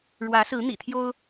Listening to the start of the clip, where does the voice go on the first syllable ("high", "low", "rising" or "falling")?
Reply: rising